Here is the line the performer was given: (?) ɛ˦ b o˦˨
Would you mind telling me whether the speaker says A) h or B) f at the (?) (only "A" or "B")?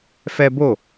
B